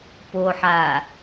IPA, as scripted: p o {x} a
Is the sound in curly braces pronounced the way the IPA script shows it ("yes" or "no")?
no